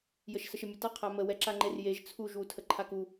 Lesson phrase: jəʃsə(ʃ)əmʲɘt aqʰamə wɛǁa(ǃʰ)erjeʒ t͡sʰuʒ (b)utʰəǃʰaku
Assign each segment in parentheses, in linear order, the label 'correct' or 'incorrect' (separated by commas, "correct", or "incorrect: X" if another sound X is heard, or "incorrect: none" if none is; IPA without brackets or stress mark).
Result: correct, incorrect: ŋ͡ǃ, incorrect: w